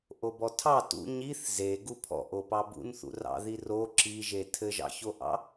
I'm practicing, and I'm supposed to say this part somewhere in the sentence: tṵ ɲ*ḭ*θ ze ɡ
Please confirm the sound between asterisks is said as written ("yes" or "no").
no